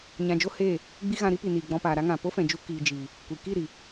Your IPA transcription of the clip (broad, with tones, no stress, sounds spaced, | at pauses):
ɲ ã˧ d͡ʒ o˦ h eː˦˨ | ɡ͡b i˦ ɣ ã˧ ɾ i˦ p i˨ n iː˨ ɡ͡b ɔ̃˧ p aː˨ ɾ a˦ ŋ ã˨ p o˦ f ɛ̃˨ d͡ʒ u˧ k iː˨ d͡ʒ iː˨ | kʷ i˨ k i˦˨ ɾ i˨